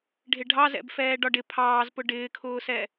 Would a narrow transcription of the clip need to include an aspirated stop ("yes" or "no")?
yes